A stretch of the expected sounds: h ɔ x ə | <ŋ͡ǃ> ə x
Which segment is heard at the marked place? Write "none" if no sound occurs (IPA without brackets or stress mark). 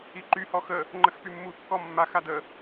ŋ͡ǃ